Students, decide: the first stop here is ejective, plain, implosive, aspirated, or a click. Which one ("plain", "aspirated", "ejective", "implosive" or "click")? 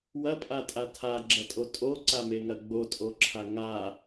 ejective